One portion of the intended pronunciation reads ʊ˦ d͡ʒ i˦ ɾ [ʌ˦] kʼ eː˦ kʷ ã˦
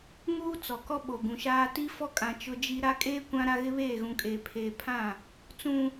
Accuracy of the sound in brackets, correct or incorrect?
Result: incorrect